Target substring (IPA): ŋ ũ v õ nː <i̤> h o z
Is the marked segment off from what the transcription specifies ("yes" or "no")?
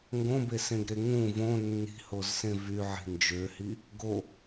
no